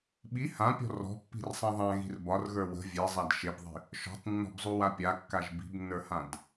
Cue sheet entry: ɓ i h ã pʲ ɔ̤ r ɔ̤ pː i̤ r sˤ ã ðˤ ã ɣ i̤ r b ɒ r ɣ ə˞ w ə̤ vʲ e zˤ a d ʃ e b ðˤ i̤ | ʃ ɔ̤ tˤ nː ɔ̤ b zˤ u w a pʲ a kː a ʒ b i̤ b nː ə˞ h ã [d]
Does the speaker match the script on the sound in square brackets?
yes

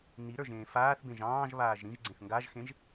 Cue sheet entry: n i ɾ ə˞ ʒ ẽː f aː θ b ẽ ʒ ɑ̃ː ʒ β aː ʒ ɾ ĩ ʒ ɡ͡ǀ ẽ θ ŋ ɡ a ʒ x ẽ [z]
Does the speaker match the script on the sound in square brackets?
no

